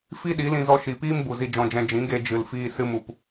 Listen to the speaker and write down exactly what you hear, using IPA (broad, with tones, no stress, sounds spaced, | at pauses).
f i˦ ɗ i˨˦ l ĩ˧ z ɔ˧ ʃ i˨ p iː˦ m b u˨ z i˧ d͡ʒ ɔ̃˧ d͡ʒ ɛ̃˧ d͡ʒ ĩ˨˦ ɡ e˧ d͡ʒ ɨ˨ l f iː˧ s ɨ˧ m u˨ p